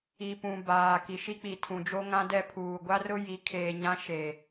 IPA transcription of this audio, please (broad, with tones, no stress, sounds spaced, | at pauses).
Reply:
i˨ p ũ˨ b aː˨ k i˨ ʃ i˦ k͡p i˨ tʰ ũ˨ d͡ʒ o˦ ŋ ã˦ d ɛ˦ pʰ uː˨ ɡʷ a˦ r ʊ˦ j i˨˦ kʰ eː˨ ɲ ã˦ ʃ e˨